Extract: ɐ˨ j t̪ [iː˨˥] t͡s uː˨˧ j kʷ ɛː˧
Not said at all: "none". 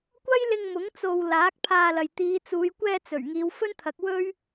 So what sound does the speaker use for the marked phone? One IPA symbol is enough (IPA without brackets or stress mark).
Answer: iː˨˧